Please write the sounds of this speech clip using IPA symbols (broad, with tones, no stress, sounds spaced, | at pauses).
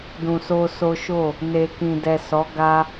d ũ˧ s o˦ s o˦ ʃ o˦˨ | n e˨ k ĩ˨ d ɛ˨ s ɔ˨˦ ɡ a˦